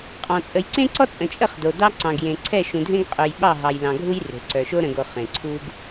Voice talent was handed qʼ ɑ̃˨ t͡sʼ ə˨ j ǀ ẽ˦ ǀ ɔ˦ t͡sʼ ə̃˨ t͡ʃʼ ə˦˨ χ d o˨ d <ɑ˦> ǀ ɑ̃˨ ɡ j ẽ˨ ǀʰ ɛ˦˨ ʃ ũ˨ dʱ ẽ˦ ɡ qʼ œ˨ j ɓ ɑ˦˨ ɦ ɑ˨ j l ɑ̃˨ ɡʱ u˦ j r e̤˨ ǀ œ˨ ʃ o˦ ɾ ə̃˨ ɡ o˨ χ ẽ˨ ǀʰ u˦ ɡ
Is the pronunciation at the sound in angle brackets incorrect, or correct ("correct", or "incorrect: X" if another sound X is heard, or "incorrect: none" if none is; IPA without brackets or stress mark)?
correct